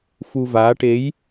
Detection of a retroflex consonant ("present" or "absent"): present